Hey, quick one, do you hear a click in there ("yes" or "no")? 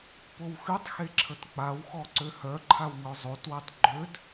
yes